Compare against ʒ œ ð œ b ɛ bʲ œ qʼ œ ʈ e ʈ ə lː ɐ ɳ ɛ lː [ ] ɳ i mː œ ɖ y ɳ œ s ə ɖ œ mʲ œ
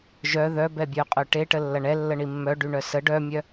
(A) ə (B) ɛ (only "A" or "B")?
A